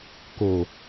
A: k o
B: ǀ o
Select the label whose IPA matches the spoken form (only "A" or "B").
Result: A